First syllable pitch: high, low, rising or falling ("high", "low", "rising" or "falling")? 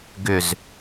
low